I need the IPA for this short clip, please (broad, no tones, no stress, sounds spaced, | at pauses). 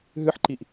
ɦ ɨ ħ ǃ i ʔ